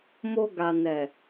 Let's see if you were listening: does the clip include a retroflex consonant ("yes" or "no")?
no